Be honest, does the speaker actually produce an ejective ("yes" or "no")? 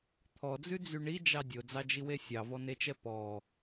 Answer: no